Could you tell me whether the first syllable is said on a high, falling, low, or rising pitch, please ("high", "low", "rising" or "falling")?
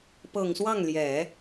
low